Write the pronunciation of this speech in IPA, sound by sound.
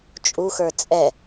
t͡ʃʼ u x ə˞ t͡sʼ ɛ

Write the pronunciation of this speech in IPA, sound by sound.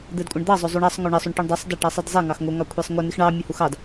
d̪ ɛ d kʷʼ ə ɳ d̪ ɑ zˤ o zˤ u ɳ ɑ sˤ ŋ o ɳ ə sˤ u ɳ ʈ u ɳ dˤ ɛ sˤ d ɑ ʈ ɑ sˤ ɛ d zˤ ɛ ŋ ɑ x ŋ o ŋ ɑ kʷʰ ɛ sˤ ŋʷ ə n i x ɳ ɑ mʲ ɛ h u x ɑ d

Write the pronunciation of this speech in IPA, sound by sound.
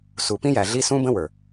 s u˨ p ĩ˦ j æ˨ ɮ i˦ s ũ˦ b ə̃˦ w ə˞˨

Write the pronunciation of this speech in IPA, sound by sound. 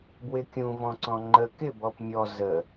b w ɪ kʲ ũ v ɔ̃ ǀ ɔ̃ ŋ͡ǃ ə k ɪ b ɔ p mʲ ɔ z ə

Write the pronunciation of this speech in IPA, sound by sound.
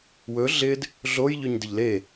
w ɵ ɮ ɪ d | ɮ o j ʎ ɵ ɲ d ɪ ʎ l e

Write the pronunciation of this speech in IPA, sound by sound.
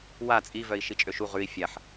w a t͡sʼ i v œ i̯ ʃ i t͡ʃʼ ø ʃ u ʁ ʉ i̯ fʲ a ħ

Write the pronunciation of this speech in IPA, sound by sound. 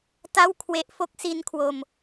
t a˥˩ w kʰ w e˦˥ ʔ f o˦˥ k̚ s i˦˥ n kʰ w o˧ m

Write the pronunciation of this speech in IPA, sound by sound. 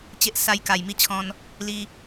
t͡ɕ e˦ ʔ s a˧ j k a˨˩ j m i˦ t͡ɕʰ ɔ̃˧ n | l i˧

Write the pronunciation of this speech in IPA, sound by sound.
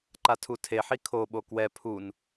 ǃ a tʰ u tʰ e ħ i kʰ o ɓ o k w ɛ pʰ u n

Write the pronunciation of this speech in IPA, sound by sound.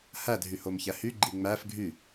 h æ dʱ y h o m ç æ h y ɡ͡ǃ i ŋ͡m æ f ɡʱ y

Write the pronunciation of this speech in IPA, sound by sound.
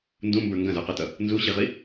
n d ũ m b ə˞ ŋ ɡ ɐ̃ z ə˞ q ə˞ t ʌ | n z u ɕ i ʁ i

